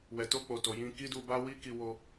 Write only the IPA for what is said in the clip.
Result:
w ɛ˨ t o˧ k͡p o˨ t o˨ j ĩ˧ k i˦ d u˧ b a˦ w i˦ k i˧ w o˧

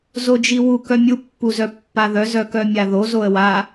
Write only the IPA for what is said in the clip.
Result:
z o d͡ʒ i w u k œ mʲ u pː u z œ pː a ð œ z œ k œ mʲ a ð o z o ə̯ w a

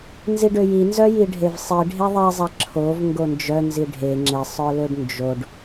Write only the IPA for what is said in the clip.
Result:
n z i ɖ ø j i n z œ j i ɖʱ e v sˤ i ɖʱ e ðˤ i zˤ ɛ ǁʰ o v ŋ ɡ o n d͡ʒ œ n z i ɖʱ e ŋ͡ǁ e sˤ œ l ø ɖ n d͡ʒ o ɖ

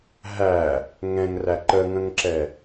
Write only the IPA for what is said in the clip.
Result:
ɦ æ | ŋ ɛ̃ ŋ r æ ǃ ə ŋ ə̃ ŋ ǁ ɛ

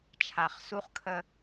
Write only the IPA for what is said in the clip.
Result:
t͡ʃʰ a˨ χ s u˦ χ kʰ ə˦

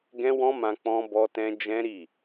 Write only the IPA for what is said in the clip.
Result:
ɡ ɛ̃˦ w ɔ̃˦ m ã˧ k͡p ɔ̃˦ b ɔ˦ t ɛ̃˦ d͡ʒ ɛ̃˦ ɾ i˦˨

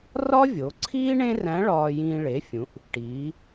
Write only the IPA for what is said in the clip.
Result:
r ɒ˥ vʲ o˩˧ ǀʰ iː˥ ɳ ẽ˥ r æ̃˧˥ ɭ ɒː˧ j ĩː˧ ɭ e˩˧ fʲ ũ˩˧ ʔ | ʈ iː˩˧

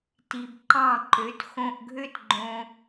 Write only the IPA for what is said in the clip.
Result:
t i˩ b ǃ ɑ̃˥˩ ǃ ø˩˥ t x õ˧ ʔ ɡʱ ø˥ t ɡ͡ǃ õ˧

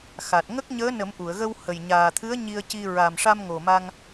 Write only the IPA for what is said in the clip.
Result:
x a˨˩ t̚ ŋ ə˦˥ k̚ ɲ əː˧˥ n ə˨˩˦ m ʔ u˨˩˨ ə̯ ɣ ə˧ w h ə˨˩ j ɲ aː˨˩ t̪ʰ ɨ˧˥ ə̯ ɲ i˧ ə̯ c i˧ ɹ a˨˩ m ʂ a˧ m ŋ o˨˩ m a˧ ŋ

